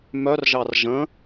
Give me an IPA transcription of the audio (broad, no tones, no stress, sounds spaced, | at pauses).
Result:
m œ r ʒ ɑ r ʒ ə̃